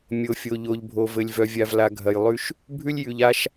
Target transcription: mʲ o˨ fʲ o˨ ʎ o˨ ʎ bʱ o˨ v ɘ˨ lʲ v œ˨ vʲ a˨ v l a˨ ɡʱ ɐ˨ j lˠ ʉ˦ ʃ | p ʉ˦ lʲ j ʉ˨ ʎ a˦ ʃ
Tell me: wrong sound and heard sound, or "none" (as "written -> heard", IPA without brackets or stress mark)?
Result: p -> bʱ